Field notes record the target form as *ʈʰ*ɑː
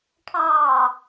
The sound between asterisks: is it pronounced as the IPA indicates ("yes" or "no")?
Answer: yes